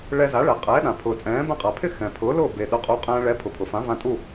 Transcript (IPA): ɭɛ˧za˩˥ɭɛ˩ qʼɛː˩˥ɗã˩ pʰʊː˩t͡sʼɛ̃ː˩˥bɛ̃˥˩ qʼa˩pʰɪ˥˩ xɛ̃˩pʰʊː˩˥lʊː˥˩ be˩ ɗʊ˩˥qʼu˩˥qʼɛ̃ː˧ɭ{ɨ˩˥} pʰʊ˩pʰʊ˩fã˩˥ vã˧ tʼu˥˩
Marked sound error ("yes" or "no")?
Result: yes